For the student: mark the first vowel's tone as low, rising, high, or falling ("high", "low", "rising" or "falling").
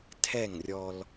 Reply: falling